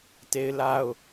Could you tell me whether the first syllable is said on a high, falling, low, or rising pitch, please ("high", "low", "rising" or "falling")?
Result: high